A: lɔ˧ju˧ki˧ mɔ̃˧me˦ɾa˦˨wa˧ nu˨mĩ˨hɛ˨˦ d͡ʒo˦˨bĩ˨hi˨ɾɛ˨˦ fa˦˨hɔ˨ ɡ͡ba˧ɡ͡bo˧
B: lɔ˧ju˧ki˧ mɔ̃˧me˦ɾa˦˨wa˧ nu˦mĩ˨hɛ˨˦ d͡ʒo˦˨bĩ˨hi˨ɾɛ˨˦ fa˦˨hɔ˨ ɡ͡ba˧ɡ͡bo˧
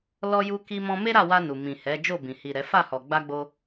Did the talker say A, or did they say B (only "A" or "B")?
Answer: A